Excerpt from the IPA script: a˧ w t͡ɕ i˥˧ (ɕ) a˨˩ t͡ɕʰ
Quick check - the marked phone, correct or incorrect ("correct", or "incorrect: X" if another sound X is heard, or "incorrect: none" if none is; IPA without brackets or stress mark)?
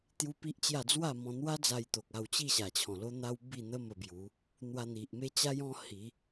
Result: correct